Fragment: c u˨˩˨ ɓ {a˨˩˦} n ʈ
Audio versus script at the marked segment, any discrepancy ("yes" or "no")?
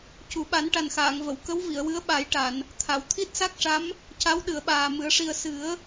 no